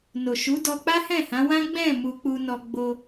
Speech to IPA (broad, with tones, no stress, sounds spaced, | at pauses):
n o˨ ʃ u˨˦ d ɔ˧ k͡p a˦ h ɛ̃˦˨ h ã˨˦ w ã˦ ɡ͡b ɛ̃˦˨ m u˧ k͡p u˧ n ɔ˧ ɡ͡b o˧